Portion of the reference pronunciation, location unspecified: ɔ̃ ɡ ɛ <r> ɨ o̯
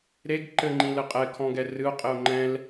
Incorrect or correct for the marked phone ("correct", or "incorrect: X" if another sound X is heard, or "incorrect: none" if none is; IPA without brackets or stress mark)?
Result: correct